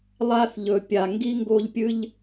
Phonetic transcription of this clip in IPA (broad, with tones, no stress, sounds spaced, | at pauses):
lˠ a˧ θ ʎ ɵ˨ pʲ a˨ ŋ ɡ i˧ ŋ ɡ o˧ ʎ pʲ ɨ˧ ʎ